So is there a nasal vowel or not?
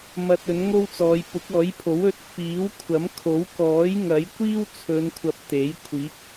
no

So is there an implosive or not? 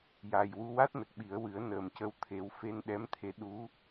yes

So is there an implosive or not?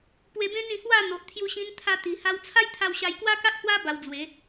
no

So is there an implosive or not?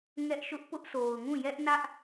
no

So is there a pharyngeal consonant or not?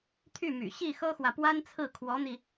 no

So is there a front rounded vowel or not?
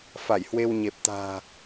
no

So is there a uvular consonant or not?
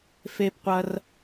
yes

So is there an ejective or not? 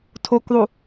no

